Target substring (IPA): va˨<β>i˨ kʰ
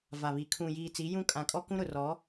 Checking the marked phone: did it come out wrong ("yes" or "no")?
no